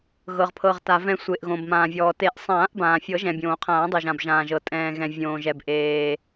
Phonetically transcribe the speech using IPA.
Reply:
ɣ ɤ˩ ʁ pʰ ɤ˩ ʁ t a˩ v ɛ̃˨˩˦ sʷ e˩ ʔ ɣ õ˩ b m ãː˩ vʲ ɔː˩ t e˨˩˦ ʔ sˤ ãː˨˩˦ ʔ b ãː˩ fʲ ɤ˨˩˦ ʒ ɛ̃˩ bʲ õː˩ qʰ ãː˨˩˦ dˤ i˩ ʒ ã˩ b ʒ ãː˩ ʒ ɤ˩ tʼ ɛ̃ː˩ ɣ ɛ̃˩ vʲ õː˩ ʒ ɛ˩ b ʔ eː˩

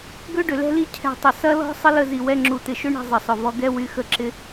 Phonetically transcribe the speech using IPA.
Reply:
ɡ ø˦ ɖ ʏ˨ l ɛ̤˦ l i˦˨ cʰ ɛ̤˧ tˤ ʊ˨ s ɐ˦ l ɔ̤˦ sˤ ə˦ l ə˧ z i˨ w ɛ˧ ŋ͡ǁ u˨ t̪ ɪ˨ ʃ ʏ˦ ɳ i̤˧ zˤ ə˨ sˤ ʊ˨ v ɔ˧ ɡ ɛ˦ w y˧ x ə˦˨ ǁ ɪ˦

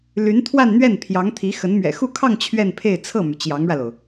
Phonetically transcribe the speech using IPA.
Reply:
l y˧˥ n t̪ʰ w a˥˧ n n̪ ɥ ɛ˥˩ n pʰ j ɑ˧˥ ŋ t̪ʰ i˧˥ x ə˧˥ n m ɥ ɛ̰˨˩ x u˥˧ kʰ ɑ˥˧ ŋ t͡ɕʰ ɥ ɛ˥˧ n pʰ e˥˧ ɪ̯ t͡sʰ ɤ˥˩ m y˩ t͡ɕ j ɑ˧˥ ŋ ɻ ä˧ l o˩ ʊ̯

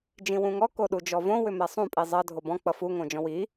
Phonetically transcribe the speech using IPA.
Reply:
d͡ʒ ĩ w ũ ŋ ɔ k o ɗ u d͡ʒ ɔ v õ w ʏ m ɛ sˤ ũ pʼ i zˤ ʌ dʱ o b ɔ̃ k͡p ʌ f u ŋ õ d͡ʒ ɔ̃ w i

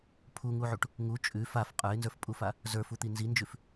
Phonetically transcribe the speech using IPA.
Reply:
pʰ u ŋ u ʕ u ʈ | ŋ u t͡ʃʼ ʉ f a f qʼ ə˞ ɪ̯ n z ə˞ f pʼ u f a | z ə˞ f u t̪ i n z i n d͡ʒ ʉ f

